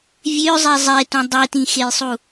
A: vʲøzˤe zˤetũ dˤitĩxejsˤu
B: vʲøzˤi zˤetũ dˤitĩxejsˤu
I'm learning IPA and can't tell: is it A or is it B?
A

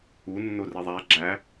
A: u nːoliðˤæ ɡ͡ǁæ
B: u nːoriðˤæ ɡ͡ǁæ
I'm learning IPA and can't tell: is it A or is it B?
B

